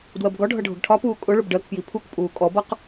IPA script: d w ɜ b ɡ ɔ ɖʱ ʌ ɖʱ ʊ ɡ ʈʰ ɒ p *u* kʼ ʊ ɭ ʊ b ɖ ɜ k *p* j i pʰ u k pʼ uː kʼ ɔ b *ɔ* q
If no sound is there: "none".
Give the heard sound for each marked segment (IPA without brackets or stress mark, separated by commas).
uː, p, ʌ